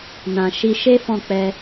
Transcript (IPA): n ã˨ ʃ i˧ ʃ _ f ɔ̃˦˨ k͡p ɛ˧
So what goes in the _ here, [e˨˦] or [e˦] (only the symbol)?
e˦